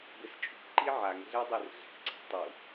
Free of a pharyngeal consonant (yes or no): no